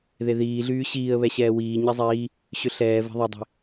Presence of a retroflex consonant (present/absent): absent